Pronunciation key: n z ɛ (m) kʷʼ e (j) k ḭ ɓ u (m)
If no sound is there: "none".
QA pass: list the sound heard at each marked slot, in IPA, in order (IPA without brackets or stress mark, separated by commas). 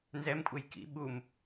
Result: m, j, m